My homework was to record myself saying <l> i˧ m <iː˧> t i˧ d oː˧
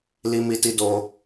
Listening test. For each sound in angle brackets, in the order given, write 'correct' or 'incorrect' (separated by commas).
correct, incorrect